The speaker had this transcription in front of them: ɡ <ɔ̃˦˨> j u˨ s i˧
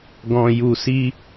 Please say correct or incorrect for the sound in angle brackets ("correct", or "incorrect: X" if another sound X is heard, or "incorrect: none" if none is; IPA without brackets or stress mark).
incorrect: ɔ̃˨